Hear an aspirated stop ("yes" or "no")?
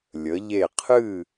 yes